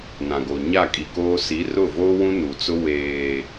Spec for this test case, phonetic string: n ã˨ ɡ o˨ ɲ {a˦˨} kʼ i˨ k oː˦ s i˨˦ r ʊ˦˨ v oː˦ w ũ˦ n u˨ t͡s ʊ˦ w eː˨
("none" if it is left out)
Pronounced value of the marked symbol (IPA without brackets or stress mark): a˦˨